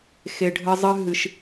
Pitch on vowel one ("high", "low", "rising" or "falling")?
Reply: low